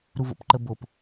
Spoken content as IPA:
ɾuvo̰pǃəbop

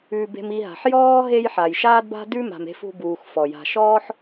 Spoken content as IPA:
ʉ˨ be̤˨mi˨ ɦa̤˩ħ jɔː˥ ɦe˦jħa˩jʃaː˥d ba̤˥dʉ˥ ma̤˨me̤˦ fṳ˦buː˨x fɔ˩ja̤˨ʃɔː˥ħ

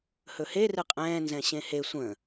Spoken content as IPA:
hɵhe rɨqʼɛ̃ː nzɛ̃ɕẽhe sʷə̃

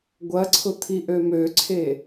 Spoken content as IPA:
ɡʷɐǀʰʊ t̪ʰiʔømøǀʰe

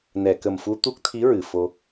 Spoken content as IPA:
nɛ˨˩˨kə˨˩mfu˧ t̪u˦˥k̚t̪ʰi˧˥ɹɨ˨˩˨ fo˧

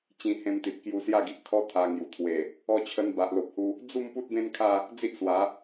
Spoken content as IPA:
t͡ɕĩ˧hẽ˧mt̪i˨t̚ kju˧sja˥˧ɡi˨ʔkʰɔ˦ t̪ʰa˧ŋju˨˩ t̪ʰwe˨˩ | ɔ˧t͡ɕʰə˧n ba˨ʔlo˨p̚hu˧ | d͡zu˥˧m pu˦t̚bẽ˦nkʰa˥˧ | d͡zi˦ʔswa˨˦

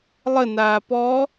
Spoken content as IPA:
lˠənaː pɔ

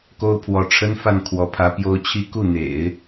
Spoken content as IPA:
ko˥ʊ̯pʰwɔ˧˥ʈ͡ʂʰə˥n fa˥˩n kʰwɔ˧˥pʰä˧˥ pjo˧˥ʊ̯t͡ɕʰi˧˥ ku˥˩n̪ḛ˨˩˦ɪ̯

